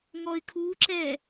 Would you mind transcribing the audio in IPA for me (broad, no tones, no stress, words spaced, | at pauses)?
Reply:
ŋɔɪ̯kʰuǁɛ